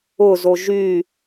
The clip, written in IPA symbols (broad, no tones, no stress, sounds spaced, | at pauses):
ʊ z o ʒ y